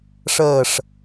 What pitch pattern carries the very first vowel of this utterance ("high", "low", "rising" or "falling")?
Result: falling